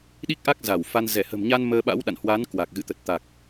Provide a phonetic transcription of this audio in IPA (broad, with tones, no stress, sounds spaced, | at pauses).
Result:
ɗ i˦˥ k̚ ʔ a˦˥ k̚ z a˧˩ w f a˧ n z ɛ˧˩ h ə̤˨˩ m ɲ a˧ n m əː˧ ɓ a̰˧˥ w ɗ a̰˧˨ n h w a˨˦ n k w a˨˩ k̚ ɣ ɨ̰˧˨ t̪ ə˨˩ t̚ t̪ a˨˩ k̚